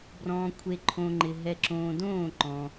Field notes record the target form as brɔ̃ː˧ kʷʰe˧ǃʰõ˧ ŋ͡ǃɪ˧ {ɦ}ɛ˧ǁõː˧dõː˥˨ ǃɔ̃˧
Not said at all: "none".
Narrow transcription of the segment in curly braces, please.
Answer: ɦ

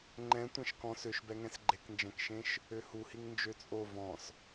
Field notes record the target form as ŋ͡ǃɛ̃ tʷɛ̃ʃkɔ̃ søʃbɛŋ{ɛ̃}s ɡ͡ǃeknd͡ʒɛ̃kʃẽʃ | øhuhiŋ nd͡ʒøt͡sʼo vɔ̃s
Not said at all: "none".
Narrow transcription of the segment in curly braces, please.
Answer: ɛ̃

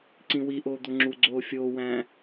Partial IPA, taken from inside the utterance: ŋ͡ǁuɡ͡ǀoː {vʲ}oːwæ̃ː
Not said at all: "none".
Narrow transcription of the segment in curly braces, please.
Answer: fʲ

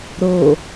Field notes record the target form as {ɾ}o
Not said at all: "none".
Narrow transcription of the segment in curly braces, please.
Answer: ɾ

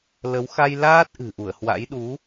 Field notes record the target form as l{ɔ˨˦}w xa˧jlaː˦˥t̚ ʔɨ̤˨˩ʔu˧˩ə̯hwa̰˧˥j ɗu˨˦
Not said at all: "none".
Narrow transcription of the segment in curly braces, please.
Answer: ə˨˦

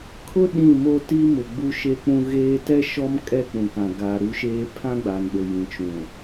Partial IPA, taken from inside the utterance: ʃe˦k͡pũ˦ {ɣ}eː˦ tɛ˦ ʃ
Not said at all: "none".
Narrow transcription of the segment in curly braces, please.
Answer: ɣ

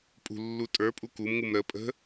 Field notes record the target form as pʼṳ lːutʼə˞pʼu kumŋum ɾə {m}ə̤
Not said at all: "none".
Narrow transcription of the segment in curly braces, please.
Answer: pʼ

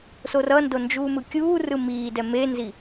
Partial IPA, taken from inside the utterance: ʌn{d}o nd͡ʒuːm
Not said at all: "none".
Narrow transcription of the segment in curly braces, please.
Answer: d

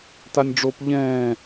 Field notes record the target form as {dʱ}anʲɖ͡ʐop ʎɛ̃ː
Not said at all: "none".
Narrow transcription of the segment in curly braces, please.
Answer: t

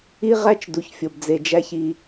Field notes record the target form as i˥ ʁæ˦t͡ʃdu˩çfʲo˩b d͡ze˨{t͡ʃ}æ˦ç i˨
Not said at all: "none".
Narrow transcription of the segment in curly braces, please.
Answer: d͡ʒ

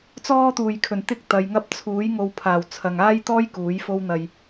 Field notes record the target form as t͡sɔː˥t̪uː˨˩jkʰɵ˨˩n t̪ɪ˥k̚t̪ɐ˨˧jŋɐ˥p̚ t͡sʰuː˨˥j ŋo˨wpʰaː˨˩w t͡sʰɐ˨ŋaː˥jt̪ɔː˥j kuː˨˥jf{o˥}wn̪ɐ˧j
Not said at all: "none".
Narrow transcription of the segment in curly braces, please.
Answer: o˥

